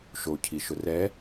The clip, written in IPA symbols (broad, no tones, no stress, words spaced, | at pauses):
ʃocʰi ʃʊrɛ